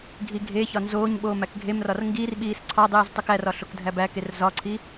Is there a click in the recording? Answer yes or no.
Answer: yes